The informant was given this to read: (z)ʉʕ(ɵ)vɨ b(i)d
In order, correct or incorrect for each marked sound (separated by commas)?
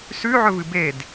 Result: incorrect, correct, incorrect